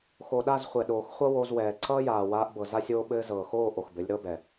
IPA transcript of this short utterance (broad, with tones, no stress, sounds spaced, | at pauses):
x o˨ ɗ a˦˨ z χʷ ɛ˨ ɗ oː˨ x χʷ ʌ˦ w o˧ z w ɛː˨ ǀ ʌː˦ j aː˨ w aː˧ ʔ b ɤ˨ z a˦ sʲ oː˦ ɓ ɘː˦ z ɤː˨ x oː˦˨ ʔ o˨ x b ɘ˨˦ lʲ ɾ ɤ˦ b ɛ˨